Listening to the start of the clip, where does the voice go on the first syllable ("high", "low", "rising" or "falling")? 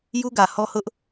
high